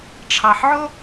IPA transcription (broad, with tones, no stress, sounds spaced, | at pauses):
ʈ͡ʂʰ ɑ˧ ħ ʕ o˥